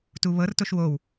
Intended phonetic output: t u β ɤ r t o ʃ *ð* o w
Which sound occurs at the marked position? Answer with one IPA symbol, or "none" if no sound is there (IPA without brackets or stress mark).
w